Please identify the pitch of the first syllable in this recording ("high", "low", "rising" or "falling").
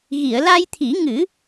low